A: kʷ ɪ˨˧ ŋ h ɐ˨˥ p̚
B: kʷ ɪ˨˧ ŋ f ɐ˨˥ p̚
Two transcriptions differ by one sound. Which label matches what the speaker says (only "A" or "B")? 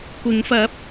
B